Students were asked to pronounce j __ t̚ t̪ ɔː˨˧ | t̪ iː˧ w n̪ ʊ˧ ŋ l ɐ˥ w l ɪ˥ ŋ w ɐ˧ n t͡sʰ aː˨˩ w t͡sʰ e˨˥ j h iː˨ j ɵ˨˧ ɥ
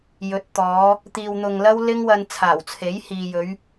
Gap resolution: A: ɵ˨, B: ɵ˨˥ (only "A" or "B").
B